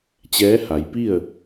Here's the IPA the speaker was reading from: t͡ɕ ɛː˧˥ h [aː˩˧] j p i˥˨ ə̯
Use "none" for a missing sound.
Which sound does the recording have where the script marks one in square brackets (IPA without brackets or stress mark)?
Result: a˩˧